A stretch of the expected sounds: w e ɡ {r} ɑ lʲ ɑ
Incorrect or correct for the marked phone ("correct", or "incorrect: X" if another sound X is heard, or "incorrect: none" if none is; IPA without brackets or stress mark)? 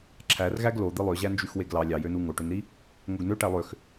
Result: incorrect: l